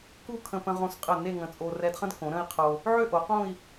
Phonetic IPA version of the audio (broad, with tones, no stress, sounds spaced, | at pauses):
k u˥˧ kʰ ə̃˧ p ə̃˧ ʁ õ˧ s qʼ ə˧˩ n e˥˧ ŋ ə̃˧˩ t͡sʼ o˧ r ɛ˧ d χ ə̃˥ d k õ˩˧ ɾ ə̃˥˧ i̯ qʰ o˧ | ʕ ø˥˧ ʔ o˩˧ q õ˥˧ i̯